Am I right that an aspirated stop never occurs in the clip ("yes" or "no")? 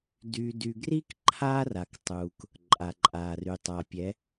no